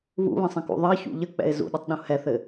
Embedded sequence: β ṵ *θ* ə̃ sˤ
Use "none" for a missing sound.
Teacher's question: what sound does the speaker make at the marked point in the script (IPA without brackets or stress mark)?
β